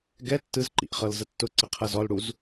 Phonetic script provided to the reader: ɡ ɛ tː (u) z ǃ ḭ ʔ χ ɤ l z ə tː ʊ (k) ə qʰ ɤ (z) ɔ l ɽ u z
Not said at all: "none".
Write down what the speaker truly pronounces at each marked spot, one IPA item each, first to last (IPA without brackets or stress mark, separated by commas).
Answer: ɯ, ǀ, z